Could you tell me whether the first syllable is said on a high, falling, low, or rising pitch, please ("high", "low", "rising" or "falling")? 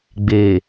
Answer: low